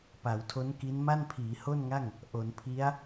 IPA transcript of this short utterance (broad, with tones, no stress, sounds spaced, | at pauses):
p a˩˦ w tʰ o˦˥ n k i˦˥ n m a˥˩ n pʰ iː˩˦ h o˥˩ n ŋ a˥˩ ŋ | ʔ o˩˦ n pʰ i˦˥ a̯